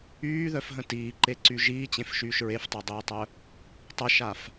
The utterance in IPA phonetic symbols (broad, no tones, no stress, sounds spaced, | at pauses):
yː ð œ f ɦ ə̃ t iː ǃ e ǀ y ʒ iː t͡ɕ ẽ f ʃ yː ʃ ɹ e f tˤ ø dˤ iː tˤ œ | tˤ ə ʃ a f